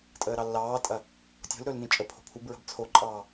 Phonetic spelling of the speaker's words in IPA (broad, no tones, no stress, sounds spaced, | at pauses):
tʼ əː ɾ ɑ lː ɑː tʼ ɐ | tʲ o̤ l ɾ ɵː l n ĩ t͡ʃʼ ə pʰ o̤ pʰ u b ɹ ə̤ b t͡sʰ o ǃʼ ɑː